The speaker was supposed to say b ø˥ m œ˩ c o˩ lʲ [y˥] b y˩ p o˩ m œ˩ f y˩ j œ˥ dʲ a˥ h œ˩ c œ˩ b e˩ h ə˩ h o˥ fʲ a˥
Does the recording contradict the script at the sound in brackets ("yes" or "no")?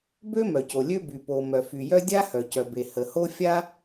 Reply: yes